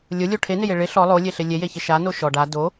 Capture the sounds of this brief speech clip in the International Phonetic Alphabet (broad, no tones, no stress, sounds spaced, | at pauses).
lʲ ʊ lʲ o ʈʰ e n ɪ j e ɭ ɪ ɬ ɔ lˠ o lʲ e ɬ ɪ lʲ e j e ç ɪ ʃ a n o ʃ ɔ ɖ a d o